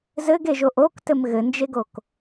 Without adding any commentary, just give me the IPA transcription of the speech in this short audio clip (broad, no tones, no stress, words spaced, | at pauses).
zɘɡeʒoʔ oktɘm ɣɘnd͡ʒeɡok